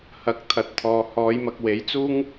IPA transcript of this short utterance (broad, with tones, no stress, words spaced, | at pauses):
hɐ˨˥k̚ t̪ʰɐ˨˥t̚t̪ʰɔː˨ hɔː˨˧jmɐ˨k̚we˨˥jt͡suː˥ŋ